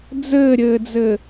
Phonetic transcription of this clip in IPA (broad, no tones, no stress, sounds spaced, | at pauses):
d͡z ɘː ɾʲ ɘː d͡z ɘ